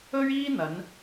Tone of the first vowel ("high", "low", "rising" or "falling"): high